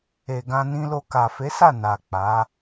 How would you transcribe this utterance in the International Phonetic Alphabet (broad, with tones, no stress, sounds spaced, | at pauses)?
e˨ ɡ ã˧ n ĩ˧ l o˧ k a˨ f e˨˦ s a˦˨ n a˨ k͡p a˨˦